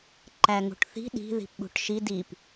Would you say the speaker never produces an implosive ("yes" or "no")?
no